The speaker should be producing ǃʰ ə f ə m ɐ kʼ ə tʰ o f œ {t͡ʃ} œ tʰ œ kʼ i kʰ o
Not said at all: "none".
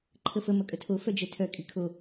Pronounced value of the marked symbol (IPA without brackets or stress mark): d͡ʒ